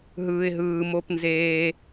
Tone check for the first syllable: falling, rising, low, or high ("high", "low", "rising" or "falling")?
low